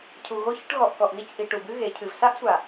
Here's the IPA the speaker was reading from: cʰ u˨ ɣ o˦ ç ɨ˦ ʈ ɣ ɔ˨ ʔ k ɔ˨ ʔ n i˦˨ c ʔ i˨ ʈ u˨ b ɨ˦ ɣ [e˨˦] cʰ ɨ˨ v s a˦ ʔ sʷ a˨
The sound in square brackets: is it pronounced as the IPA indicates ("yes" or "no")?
yes